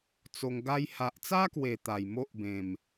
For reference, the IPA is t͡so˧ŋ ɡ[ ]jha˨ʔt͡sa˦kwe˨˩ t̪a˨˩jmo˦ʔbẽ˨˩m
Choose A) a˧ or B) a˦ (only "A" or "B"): A